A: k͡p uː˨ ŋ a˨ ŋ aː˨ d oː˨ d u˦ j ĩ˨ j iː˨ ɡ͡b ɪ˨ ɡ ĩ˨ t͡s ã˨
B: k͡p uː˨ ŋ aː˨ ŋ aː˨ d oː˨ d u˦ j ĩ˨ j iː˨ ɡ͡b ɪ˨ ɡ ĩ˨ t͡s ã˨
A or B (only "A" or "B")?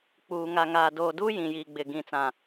A